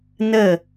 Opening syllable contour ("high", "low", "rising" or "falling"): falling